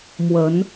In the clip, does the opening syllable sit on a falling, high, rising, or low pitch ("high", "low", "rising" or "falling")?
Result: rising